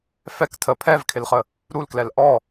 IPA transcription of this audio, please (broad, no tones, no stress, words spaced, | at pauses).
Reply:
fɛk tʰə pʰɛvkʰɪlχə | ɾulklɛl ʔɔ